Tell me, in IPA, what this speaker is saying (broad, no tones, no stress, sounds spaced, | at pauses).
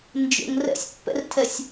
n d͡ʒ ə̰ ŋ r ɛ̰ sʲ pː ɛ̰ r tʰ ɛ sʲ